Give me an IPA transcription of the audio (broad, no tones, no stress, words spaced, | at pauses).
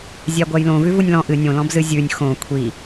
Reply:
zʲæɡʷæjlõ vʉvunʲlɔ̃ ʔɨ nʲõlɔ̃bzɨ zʲʉnʲ xõ kʷʰi